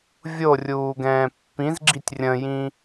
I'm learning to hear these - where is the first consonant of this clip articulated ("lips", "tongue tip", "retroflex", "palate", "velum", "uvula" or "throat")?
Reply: lips